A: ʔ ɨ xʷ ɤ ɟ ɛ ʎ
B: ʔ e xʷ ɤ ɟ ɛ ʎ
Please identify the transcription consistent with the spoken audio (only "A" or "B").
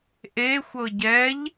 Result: B